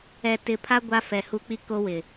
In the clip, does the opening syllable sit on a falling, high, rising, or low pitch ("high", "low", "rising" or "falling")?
low